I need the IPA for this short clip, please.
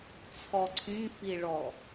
t͡sʰ ɔ ǀʰ ĩ f i ɭ ɔ

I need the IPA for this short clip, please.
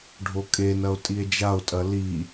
ɖʱ o kʼ e n ɐ o̯ tʼ i e̯ d͡ʒ a o̯ tʼ ɐ l i

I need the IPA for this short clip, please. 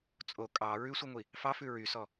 t͡sʼ o kʼ ɑ ɹ ʉ sʷ i ŋʷ i | f ɑ f ʉ ɹ y s ɔ

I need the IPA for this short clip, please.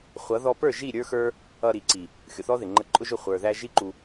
χʷ ʌ˨˦ ð ɔ˧ p ə˞˦˨ ʒ i˦˨ ɾʲ ə˞˦ x ə˞˦ | ʌ˧ ɾ i˨ ǀ i˨ | xʲ ʊ˨ θ ɔ˦ ð ɪ˨ ŋ͡ǃ ə˧ ǃʼ ʊ˦ ʒ ʊ˦˨ χʷ ə˞˨ ð æ˧ ʒ i˦ ǃ u˧

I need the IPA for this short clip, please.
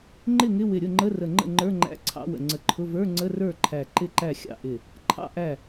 ŋ͡ǃ ɪ˥˩ ŋ ɪ˧˥˧ w ɪ˧˩ ɾʲ ʊ˥˩ ŋ͡ǃ ə˧˥˧ r ə˧˩ ŋ͡ǃ ə̰˥˩ ŋ͡ǃ ə˞˧˥˧ ŋ͡ǃ æ̰˧˥˧ ǀʰ ɑ̰˧˥˧ w ə̰˧˩ ŋ͡ǀ ə˧˩ ǃʰ ʊ˧˥˧ v ə˞˧˥˧ ŋ͡ǀ ə˧˥˧ r ə˞˥˩ ǃʰ æ˧˩ ǃ ɪ˥˩ ǃ æ˥˩ xʲ ɑ̰˥˩ ʔ ɪ˧˩ | ǃʰ ɑ̰˧˥˧ ʔ æ˧˩

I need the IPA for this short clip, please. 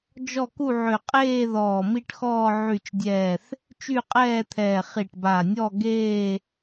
d͡ʒ ɔ˦˨ k u˦˨ ʕ ø˨˩ qʼ eː˦˨ ð ɔː˨˩ m i˦˨ ʈ x ɔː˦˨ ʕ y˨˩ t͡ʃ dʲ ɛː˨˩ θ | t͡ʃ y˦˨ qʼ ɛː˦˨ t̪ʰ ɛː˨˩ χ i˨˩ ʈ b a˨˩ nʲ ɔ˦˨ ɡ eː˦˨

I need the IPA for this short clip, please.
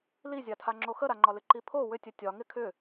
l i zʲ a tʰ a ŋ͡ǁ o x ə ɾ a ŋ͡ǃ ɒ l ɪ ǃ i pʰ o w ʏ tʲ ə tʲ ɒ ŋ ɪ kʰ ʏ

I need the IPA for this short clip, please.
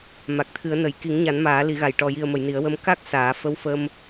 m a˨˩ k̚ t̪ʰ ɨ˨˩˦ ə̯ n ə˨˩ j k i˨˩˦ ŋ ɲ a˨˩˦ n m aː˨˩˦ l i˨˩˦ ɣ a˨˩ j ʈ ɔ˨˩ j i˨˩ ə̯ m ə˨˩˨ j n i˨˩˦ ə̯ w ə˧ m k a˦˥ k̚ s aː˨˩˦ f ə˧˥ w f ə˧ m

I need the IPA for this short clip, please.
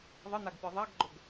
ðˤ ə n̪ a ɡ pʲ ɯ ðˤ a ɡ ɡ͡ǃ ɵ ɡ

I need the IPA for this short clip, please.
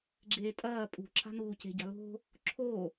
ɡ͡ǁ eː tʼ ɐː pʼ ṳ ǁ a̤ n uː c e̤ ɟ a̤ l o̤ | ǁʰ o

